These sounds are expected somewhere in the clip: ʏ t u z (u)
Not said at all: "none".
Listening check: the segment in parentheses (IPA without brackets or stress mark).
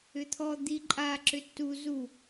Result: u